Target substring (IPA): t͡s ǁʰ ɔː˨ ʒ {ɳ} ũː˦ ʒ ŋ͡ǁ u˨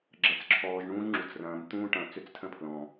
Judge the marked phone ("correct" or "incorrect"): correct